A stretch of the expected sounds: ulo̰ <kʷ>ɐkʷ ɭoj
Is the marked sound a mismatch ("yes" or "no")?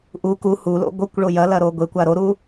yes